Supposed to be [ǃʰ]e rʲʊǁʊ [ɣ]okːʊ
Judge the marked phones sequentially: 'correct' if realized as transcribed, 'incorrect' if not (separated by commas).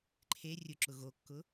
correct, correct